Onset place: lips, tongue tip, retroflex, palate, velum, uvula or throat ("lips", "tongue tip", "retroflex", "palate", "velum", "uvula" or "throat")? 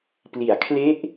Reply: lips